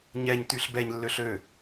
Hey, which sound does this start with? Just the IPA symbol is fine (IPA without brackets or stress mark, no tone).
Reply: ɲ